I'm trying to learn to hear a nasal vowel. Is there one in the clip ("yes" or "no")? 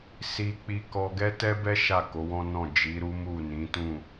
yes